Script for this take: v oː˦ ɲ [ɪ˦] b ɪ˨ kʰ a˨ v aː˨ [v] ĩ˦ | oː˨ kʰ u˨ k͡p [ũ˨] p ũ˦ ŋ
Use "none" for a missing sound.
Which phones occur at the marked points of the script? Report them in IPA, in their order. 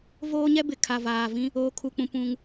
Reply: ɛ˦, v, ũ˨

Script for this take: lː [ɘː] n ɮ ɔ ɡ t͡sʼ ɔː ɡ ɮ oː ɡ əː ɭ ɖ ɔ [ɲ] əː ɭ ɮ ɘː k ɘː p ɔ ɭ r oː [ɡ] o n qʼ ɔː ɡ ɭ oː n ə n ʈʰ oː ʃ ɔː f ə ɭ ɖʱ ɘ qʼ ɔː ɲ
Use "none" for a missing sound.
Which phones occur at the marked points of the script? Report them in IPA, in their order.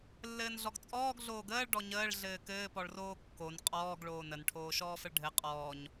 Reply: ɘː, ɲ, kː

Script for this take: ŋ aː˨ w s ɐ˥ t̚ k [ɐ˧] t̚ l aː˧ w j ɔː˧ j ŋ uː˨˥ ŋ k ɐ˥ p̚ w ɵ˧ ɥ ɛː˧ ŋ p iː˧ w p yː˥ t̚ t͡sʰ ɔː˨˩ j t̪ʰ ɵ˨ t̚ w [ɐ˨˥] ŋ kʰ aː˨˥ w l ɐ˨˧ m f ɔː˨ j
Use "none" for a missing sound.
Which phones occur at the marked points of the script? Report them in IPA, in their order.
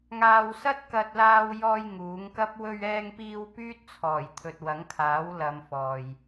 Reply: ɐ˧, ɐ˨˥

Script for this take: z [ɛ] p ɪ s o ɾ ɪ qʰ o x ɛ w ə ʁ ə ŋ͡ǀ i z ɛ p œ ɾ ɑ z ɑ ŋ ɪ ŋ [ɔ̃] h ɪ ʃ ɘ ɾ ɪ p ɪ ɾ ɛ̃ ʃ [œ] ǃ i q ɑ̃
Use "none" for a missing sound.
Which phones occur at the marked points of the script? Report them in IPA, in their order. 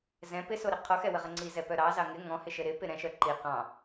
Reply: ɛ̃, ɔ̃, œ

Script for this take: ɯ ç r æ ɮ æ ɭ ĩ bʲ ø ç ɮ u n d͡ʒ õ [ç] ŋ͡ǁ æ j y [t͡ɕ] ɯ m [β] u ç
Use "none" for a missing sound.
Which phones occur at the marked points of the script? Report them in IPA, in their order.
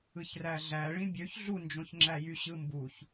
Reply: ç, ɕ, b

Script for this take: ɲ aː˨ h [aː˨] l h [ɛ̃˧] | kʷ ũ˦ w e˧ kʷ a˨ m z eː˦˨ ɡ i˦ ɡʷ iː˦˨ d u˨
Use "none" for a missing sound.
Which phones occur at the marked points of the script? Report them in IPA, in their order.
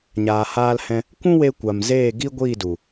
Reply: aː˧, ɛ̃˧

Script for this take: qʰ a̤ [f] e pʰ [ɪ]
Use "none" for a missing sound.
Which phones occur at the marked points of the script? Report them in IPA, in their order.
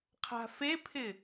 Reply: f, ɪ

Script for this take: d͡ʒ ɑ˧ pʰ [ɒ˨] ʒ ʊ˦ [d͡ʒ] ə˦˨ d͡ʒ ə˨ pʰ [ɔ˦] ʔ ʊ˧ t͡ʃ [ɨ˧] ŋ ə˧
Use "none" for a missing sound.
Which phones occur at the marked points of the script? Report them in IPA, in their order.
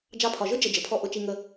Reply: ɒ˨, d͡ʒ, ɔ˦, i˧

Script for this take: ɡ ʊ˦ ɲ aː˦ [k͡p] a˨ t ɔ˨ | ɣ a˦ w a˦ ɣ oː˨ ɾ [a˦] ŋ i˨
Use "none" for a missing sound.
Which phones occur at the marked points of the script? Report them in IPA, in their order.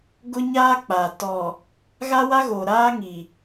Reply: k͡p, aː˦

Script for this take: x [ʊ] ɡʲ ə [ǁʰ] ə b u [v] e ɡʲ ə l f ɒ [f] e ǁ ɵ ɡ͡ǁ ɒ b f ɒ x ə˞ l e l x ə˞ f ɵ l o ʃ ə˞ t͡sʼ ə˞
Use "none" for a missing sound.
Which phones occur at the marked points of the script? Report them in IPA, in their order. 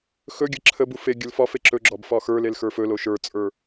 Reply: ɵ, ǁʰ, f, f

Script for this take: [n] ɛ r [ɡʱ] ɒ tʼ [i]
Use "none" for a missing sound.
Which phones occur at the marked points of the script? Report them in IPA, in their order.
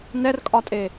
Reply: n, kʼ, e

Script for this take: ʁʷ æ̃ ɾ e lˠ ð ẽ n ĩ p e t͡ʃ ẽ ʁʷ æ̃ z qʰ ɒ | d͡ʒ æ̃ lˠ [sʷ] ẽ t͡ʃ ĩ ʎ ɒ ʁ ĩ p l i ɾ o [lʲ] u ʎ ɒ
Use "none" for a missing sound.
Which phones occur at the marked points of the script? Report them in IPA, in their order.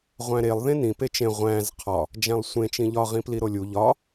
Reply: sʷ, lʲ

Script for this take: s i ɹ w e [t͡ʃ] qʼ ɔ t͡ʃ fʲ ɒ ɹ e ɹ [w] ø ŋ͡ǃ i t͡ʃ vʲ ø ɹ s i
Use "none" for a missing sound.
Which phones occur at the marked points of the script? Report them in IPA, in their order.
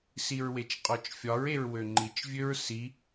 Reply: t͡ʃ, w

